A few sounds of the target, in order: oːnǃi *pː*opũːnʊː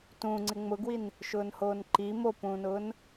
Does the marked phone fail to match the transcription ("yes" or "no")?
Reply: yes